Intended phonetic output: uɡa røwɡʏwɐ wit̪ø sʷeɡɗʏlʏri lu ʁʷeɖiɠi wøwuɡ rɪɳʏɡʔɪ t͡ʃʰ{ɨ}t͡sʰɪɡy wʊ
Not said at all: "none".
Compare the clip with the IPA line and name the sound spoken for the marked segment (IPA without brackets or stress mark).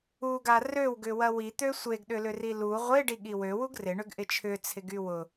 ʏ